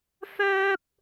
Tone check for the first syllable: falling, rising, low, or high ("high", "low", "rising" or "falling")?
high